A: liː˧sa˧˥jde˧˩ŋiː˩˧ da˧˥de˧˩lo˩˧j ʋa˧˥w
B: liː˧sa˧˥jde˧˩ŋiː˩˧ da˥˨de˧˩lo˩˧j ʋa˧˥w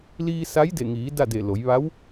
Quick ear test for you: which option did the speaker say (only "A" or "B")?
B